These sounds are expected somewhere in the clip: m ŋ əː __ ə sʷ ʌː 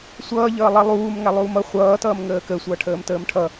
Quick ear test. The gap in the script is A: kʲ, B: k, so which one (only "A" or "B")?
B